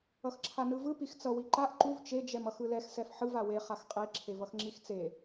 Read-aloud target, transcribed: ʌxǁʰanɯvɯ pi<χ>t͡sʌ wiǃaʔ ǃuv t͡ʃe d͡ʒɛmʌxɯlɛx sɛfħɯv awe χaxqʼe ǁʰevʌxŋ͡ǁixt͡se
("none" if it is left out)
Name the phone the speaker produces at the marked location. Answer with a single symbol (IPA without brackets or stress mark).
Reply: x